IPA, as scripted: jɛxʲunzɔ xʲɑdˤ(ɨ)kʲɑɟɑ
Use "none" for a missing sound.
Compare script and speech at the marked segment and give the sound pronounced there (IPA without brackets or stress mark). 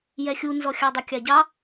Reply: ə